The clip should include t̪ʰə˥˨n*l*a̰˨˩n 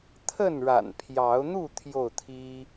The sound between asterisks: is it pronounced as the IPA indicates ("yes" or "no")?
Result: no